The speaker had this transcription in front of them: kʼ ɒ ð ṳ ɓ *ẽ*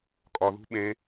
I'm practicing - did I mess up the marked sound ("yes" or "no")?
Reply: no